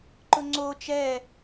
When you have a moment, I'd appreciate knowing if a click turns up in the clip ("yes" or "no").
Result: yes